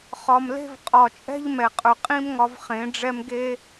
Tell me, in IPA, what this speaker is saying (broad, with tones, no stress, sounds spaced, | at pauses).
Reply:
χ ɒ˨ m l e̤˧ v qʼ ɒ˨ t͡ʃʼ ɛ̤˦ ʎ m ɛ˨ qʼ ɵ˨ qʼ ĩ˦ m ŋ ɒ˧ v χ ẽ˨˦ ɖ͡ʐ ɛ˦ m ɡ e˦